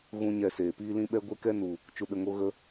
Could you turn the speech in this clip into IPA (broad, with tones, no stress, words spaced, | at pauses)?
ɣũ˦ɲɛ˧seː˨ piː˧lĩ˧ɓɛ˧ ɡʷe˧kɛ˧nu˨ | t͡ʃu˨ɗə˨ŋo˧ ɣə˦